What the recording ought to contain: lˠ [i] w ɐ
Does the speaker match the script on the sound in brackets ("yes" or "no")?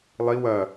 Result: yes